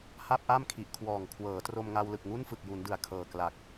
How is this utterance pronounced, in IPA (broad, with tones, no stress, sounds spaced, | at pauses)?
h a˥˩ p̚ ʔ a˥˩ m kʰ i˨˩ ʔ kʰ w ɔː˨˩ ŋ kʰ w ɤː˩˦ t r o˧ m ŋ a˧ w l ɯ˨˩ k̚ ŋ u˥˩ n f ɯ˨˩ k̚ j u˩˦ n d ɯ˨˩ a̯ kʰ ɤː˨˩ k l a˨˩ k̚